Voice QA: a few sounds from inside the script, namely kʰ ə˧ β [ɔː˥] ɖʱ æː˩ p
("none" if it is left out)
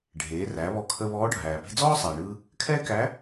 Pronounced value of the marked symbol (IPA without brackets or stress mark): ɔː˧˥